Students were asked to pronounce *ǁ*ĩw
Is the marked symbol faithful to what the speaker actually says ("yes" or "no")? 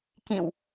no